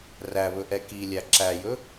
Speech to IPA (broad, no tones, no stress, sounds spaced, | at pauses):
r æ β ɵ ʔ ɛ k i lʲ æ ǁ æ j ɵ